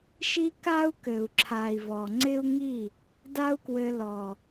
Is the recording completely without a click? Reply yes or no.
no